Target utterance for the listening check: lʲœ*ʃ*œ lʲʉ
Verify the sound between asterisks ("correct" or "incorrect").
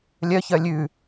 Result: incorrect